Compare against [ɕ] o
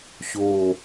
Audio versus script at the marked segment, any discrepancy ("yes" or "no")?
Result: no